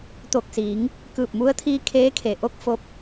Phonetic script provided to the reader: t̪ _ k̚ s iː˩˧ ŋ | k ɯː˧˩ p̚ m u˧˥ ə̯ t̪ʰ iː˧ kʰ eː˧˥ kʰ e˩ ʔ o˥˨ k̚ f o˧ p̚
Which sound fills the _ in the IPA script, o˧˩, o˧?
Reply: o˧˩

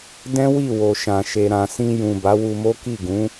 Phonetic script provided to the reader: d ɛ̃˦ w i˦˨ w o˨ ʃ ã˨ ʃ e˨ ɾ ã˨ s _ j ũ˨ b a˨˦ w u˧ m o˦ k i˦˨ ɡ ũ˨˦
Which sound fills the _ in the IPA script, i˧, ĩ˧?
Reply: ĩ˧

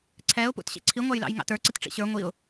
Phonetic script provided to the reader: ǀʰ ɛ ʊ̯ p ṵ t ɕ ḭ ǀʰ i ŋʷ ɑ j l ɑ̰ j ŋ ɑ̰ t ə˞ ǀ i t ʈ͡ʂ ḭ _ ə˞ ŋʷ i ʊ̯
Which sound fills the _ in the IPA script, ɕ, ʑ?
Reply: ɕ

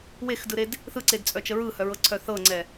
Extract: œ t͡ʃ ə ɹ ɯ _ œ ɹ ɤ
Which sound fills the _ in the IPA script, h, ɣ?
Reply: h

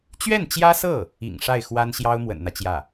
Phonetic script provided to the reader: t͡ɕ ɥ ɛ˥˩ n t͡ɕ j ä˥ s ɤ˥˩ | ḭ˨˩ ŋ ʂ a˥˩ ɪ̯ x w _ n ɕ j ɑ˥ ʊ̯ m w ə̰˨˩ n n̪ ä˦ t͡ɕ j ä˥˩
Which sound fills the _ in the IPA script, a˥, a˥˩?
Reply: a˥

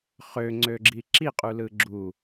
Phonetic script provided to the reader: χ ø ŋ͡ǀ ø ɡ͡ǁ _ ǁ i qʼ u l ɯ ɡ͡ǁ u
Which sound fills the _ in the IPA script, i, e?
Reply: i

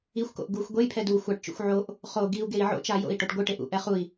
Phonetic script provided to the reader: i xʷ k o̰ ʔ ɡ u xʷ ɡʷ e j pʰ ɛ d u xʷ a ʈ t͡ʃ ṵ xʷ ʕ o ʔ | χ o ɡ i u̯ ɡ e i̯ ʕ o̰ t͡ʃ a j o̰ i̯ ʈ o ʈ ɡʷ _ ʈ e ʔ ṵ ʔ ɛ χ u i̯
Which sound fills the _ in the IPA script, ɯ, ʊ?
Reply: ɯ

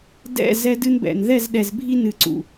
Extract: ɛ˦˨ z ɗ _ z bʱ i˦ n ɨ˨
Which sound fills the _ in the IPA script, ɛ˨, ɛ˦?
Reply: ɛ˨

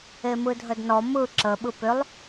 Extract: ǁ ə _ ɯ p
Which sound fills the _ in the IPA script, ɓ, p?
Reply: ɓ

